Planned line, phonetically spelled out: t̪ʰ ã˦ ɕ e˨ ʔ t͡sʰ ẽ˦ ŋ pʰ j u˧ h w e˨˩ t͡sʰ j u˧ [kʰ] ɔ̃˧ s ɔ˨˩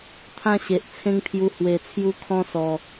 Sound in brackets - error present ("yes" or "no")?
no